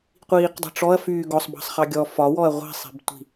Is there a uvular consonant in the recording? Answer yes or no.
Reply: yes